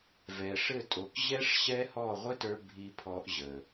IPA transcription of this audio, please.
v ɛ˨ ʂ ɘ˦˨ tʼ o˨ k ʑ ɛ˦ ʂ ɕ ɛ˦ h ɔ˦˨ ʁʷ ɘ˦ t ə˞˧ bʱ i˨ pʰ ɔ˧ ʔ ʑ ə˨

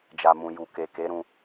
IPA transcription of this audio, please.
d͡ʒ a˨ m ũ˨ j u˨ k e˨ k e˨˦ ɾ ũ˧

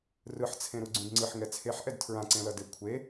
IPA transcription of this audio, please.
r ɯ ħ t͡sʰ ẽ ɾ u ɡ͡ǀ ũ d ŋ͡ǀ ɯ ħ ŋ ɛ t͡sʰ e ħ ʔ ɛ d tʰ ɹ ã ǀ ẽ l ʌ d e kʷʰ e

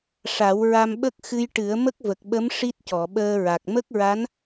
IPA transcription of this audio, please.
ʂ a˨˩˦ w ɹ a˧ m ɓ ə˦˥ k̚ x ɨ˧ j ʈ ɨ˨˩˦ ə̯ m ə˦˥ k̚ v ə˨˩ k̚ ɓ ə˧˥ m ʂ i˦˥ t̚ c ɔ˨˩˨ ɓ əː˧ ɹ a˨˩ k̚ m ə˦˥ k̚ ɹ a˧˥ n

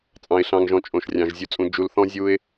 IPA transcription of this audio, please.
t͡sʼ ɑ̃˨ ɪ̯ ɬ ɑ̃˨ ŋ ʒ ɔ̃˨ t͡ʃʼ õ˨ ʃ rʲ ɑ̃˨ ʒ zʲ u˨ t͡sʼ ũ˨ d͡ʒ u˨ l θ ɔ̃˦ zʲ u˦ ɪ̯

